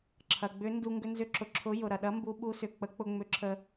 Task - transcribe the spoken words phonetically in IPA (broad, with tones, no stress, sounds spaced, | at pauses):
ǁʰ ɐ˩ ɡ͡b ʏ˨˥ n d u˧ ŋ ɡ ʏ˧ n z ʏ˨˥ ǁ ʊ˩ ǁʰ ʊ˨˥ j ʊ˩ ɾ ɐ˩ ɗ ɐ˨˥ m b u˨˥ ɓ u˨˥ s ʏ˩ k͡p ə˨˥ k͡p ʊ˧ ŋ͡m ʏ˨˥ ǁʰ ə˧